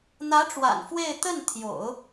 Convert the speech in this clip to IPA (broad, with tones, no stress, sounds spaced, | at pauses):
n̪ ä˧˥ ʈ͡ʂ w a̰˨˩ n f w e˥˧ ɪ̯ t̪ ə˥˩ n t̪ʰ j o̰˨˩˦ ʊ̯